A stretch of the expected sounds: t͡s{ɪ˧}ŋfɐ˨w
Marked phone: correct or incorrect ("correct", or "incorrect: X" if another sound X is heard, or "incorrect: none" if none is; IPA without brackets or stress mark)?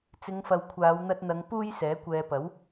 incorrect: ɪ˨˧